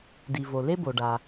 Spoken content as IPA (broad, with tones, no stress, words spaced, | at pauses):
di˩vo˩ le˥bo˩ɖa˩